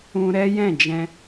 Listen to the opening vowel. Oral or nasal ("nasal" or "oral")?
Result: nasal